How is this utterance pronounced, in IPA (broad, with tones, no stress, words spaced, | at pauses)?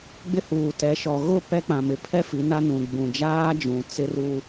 ɡ͡bɪ˦huː˨tɛ˨˦ʃɔ˨ ɣʊ˦˨ pɛ˦k͡pã˨mɪ˨ pʰɛ˦ fi˨˦na˦ nũ˨ ɡ͡bũ˨d͡ʒaː˦d͡ʒũ˨ t͡sɪ˦ru˦